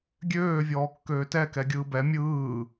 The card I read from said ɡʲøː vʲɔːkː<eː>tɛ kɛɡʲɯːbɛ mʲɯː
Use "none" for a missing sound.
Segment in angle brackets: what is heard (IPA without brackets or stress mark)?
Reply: øː